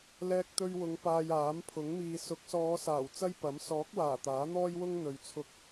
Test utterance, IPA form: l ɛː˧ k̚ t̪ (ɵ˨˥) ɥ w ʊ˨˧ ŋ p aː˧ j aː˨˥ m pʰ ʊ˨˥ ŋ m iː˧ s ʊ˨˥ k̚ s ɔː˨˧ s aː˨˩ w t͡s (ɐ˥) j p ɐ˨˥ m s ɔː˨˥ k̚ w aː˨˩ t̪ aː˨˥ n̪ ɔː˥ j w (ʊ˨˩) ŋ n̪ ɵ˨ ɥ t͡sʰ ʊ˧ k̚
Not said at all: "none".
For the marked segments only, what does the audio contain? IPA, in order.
ɵ˧, ɐ˥, ʊ˥

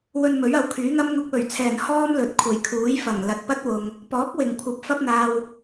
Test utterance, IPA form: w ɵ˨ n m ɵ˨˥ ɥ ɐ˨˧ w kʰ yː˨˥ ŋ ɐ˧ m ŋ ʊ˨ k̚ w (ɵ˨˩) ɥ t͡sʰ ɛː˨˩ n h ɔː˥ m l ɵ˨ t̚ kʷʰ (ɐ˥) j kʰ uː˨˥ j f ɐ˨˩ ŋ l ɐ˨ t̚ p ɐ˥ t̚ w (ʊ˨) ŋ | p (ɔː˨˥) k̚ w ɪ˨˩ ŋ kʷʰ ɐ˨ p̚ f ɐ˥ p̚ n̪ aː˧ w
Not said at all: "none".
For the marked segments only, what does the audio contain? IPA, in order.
ɵ˨˩, ɐ˨˩, ʊ˨, ɔː˨˥

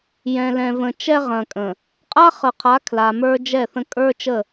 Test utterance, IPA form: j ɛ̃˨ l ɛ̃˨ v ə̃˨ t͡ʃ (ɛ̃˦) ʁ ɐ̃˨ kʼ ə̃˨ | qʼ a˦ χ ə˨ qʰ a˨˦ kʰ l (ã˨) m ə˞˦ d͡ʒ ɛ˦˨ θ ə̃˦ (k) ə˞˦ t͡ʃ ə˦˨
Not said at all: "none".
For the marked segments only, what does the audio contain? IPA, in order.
ɛ˦, a˨, kʼ

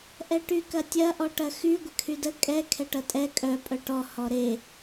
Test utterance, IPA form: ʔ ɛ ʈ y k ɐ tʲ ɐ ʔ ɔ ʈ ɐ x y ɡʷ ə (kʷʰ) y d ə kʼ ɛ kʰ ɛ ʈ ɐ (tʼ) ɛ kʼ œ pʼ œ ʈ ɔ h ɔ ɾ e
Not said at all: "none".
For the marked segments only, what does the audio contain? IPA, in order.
kʰ, tʼ

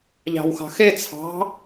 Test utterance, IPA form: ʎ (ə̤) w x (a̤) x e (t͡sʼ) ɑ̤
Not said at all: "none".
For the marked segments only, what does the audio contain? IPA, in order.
ɑ̤, ɑ̤, t͡sʰ

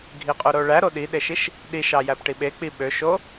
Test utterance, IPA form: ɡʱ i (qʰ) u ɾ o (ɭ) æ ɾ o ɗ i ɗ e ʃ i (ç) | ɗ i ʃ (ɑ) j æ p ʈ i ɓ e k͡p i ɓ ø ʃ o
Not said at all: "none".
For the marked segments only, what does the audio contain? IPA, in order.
qʼ, ɭ, ʃ, ɑ

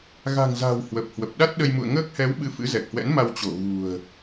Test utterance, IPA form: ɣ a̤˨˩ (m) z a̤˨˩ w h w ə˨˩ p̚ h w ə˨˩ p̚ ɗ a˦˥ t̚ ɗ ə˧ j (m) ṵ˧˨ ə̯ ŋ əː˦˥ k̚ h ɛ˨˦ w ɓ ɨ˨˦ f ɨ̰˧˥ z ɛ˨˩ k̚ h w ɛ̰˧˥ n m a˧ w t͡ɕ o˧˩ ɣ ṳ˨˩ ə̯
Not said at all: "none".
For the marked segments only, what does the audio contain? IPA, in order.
ŋ, m

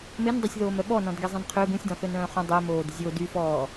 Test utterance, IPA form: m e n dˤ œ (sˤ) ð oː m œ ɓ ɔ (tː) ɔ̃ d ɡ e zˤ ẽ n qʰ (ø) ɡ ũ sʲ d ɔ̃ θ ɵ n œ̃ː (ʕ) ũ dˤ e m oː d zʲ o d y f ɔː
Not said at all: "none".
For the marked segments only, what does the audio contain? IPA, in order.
sʲ, n, ø, χ

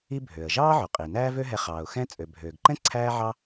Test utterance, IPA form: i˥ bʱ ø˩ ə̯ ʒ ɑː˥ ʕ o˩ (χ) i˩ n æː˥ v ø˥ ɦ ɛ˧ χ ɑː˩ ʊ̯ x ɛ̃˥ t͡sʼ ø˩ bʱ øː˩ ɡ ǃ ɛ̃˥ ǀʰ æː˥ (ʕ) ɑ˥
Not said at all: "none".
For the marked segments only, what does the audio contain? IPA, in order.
qʼ, ʕ

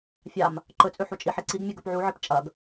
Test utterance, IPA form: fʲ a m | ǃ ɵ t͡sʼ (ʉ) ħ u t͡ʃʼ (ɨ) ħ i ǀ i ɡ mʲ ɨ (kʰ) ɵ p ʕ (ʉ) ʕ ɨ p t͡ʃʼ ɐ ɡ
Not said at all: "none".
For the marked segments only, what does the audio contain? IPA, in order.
ʉ, i, ɡ, u

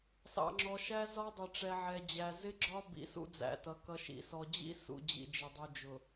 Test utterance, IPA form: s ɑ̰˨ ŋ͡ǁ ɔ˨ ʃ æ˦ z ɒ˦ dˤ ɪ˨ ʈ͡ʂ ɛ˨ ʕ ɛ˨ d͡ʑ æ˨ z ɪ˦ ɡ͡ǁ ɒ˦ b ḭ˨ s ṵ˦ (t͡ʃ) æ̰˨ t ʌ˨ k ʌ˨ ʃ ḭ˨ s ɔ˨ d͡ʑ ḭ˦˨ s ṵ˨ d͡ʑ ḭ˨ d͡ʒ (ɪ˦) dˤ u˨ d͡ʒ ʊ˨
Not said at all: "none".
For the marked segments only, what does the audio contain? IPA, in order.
d͡z, ɪ˨

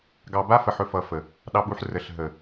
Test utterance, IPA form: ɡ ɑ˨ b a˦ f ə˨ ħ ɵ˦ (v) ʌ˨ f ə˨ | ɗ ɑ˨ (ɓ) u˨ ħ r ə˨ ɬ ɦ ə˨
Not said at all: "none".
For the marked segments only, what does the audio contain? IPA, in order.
f, ɓ

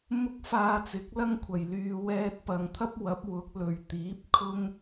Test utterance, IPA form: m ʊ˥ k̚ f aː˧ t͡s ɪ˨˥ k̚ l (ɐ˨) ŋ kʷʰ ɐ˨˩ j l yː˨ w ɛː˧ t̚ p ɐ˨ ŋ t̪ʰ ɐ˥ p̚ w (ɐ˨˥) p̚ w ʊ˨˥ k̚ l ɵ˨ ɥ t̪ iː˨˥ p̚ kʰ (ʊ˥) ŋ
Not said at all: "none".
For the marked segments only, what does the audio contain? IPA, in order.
ɐ˥, ɐ˨˥, ʊ˥

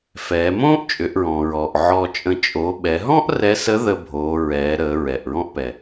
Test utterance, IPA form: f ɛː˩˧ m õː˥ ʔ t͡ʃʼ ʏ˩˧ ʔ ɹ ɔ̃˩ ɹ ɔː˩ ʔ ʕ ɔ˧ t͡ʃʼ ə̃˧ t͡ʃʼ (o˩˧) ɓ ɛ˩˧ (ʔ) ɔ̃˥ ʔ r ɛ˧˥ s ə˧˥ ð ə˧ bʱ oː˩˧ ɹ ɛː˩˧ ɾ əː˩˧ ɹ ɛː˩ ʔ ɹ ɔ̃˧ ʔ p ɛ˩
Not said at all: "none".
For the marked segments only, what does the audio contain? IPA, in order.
o˩˧, ɦ

